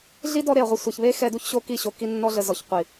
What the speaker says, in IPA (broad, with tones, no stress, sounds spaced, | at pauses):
ɮ i˦ d ɔ˦ ɾ e˨ ɐ̯ ʁʷ ɛ˧ sʷ ɛ˨ ç β e˦ x ɛ˧ d u˦ ç ɕ o˧ k i˦˨ ɕ o˧ k i˧ nː ɔ˧ ɮ ə˨ z ɔ˨ ç qʷ i˨